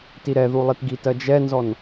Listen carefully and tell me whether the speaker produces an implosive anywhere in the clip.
no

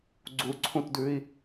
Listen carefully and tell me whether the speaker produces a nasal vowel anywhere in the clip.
yes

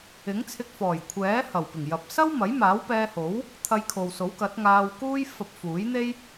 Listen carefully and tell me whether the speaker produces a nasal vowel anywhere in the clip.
no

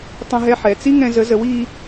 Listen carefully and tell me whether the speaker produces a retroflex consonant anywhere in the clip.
no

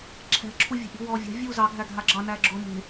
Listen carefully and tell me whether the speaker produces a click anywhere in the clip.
yes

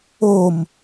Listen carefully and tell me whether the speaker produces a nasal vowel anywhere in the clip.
no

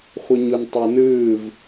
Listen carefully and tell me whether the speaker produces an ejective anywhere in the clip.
no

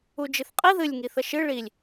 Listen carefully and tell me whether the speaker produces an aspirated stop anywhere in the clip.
no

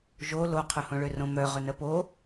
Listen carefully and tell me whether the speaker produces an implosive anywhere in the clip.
no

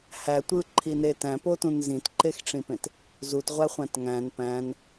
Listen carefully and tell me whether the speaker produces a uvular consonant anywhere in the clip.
yes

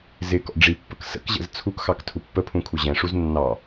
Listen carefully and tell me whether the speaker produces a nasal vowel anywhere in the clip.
yes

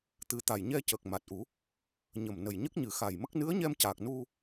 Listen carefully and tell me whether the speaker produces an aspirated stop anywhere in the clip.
no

